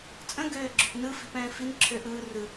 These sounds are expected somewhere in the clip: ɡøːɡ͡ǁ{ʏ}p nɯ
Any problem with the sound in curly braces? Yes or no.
no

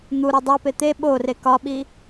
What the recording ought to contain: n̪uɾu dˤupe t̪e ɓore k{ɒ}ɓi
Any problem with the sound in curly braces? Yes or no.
no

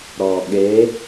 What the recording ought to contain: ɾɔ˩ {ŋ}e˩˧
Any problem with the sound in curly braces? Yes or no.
yes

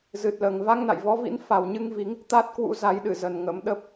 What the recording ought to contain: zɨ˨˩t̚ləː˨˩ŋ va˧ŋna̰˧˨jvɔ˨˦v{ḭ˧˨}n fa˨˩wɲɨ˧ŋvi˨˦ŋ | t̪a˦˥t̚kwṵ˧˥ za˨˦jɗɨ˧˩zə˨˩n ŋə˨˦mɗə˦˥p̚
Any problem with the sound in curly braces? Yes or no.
yes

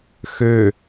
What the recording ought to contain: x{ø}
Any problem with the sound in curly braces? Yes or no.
no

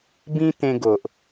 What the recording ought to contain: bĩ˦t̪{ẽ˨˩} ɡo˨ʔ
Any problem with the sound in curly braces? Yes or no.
yes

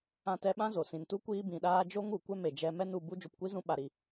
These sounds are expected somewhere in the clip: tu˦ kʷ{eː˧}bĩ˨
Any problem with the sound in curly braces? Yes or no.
yes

